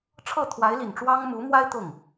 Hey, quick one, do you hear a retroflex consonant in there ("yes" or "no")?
yes